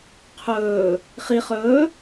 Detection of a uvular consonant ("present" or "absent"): present